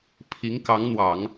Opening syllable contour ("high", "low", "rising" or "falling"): rising